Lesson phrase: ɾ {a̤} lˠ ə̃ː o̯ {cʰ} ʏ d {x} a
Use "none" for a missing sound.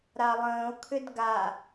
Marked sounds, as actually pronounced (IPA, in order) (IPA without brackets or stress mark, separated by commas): a, kʰ, ɡ